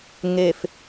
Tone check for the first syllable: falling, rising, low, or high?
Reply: low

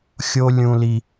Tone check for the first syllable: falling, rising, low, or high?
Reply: high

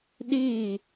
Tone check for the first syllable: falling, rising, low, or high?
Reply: falling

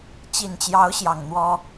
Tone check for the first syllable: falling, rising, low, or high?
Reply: low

